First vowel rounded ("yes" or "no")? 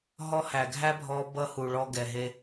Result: yes